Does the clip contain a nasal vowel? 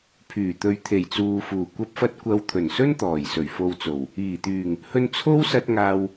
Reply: no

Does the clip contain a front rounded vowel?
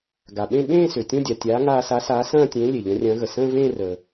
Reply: yes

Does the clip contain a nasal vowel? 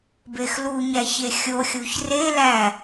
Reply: no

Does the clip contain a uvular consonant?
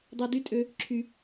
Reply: no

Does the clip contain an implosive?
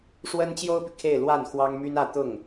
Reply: no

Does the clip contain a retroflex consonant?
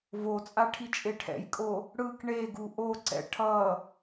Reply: yes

